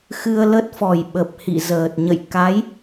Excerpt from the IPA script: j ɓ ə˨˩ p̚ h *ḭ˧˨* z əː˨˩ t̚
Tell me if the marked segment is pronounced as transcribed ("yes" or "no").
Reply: yes